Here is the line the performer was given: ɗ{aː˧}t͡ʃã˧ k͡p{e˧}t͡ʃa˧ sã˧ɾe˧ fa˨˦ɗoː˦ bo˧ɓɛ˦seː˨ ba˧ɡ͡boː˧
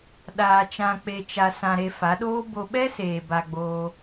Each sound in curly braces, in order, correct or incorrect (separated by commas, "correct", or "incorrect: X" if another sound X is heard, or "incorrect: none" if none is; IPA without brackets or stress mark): correct, correct